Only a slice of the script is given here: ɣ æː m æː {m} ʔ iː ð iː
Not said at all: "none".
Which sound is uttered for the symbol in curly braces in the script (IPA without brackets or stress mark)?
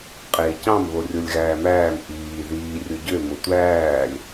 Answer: m